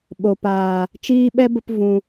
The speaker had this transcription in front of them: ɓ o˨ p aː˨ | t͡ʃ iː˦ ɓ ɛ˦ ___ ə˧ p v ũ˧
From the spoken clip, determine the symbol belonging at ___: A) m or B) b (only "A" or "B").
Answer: B